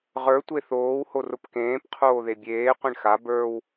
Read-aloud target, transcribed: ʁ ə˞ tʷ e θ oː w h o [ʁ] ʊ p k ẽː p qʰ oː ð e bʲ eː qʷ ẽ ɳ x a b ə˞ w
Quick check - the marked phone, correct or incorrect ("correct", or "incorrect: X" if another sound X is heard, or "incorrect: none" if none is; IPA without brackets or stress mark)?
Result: incorrect: r